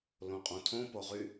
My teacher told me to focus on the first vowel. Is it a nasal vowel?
yes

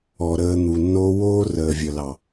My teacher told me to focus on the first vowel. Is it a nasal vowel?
no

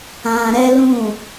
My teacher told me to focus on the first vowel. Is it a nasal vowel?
yes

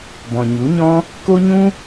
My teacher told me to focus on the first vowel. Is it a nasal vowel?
yes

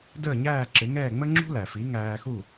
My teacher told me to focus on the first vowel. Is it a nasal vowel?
no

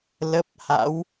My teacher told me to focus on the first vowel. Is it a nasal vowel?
no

